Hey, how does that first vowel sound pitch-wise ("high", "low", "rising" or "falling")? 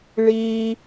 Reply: low